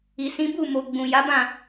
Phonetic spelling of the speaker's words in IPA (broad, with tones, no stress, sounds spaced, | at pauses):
i˨ s ĩ˨˦ b u˦˨ m o˨ ɡ͡b ũ˨ j a˨˦ b ã˦˨